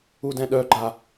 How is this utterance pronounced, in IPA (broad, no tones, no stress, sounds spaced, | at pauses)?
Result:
u d ɛ̃ ɗ œ ɡ͡ǃ a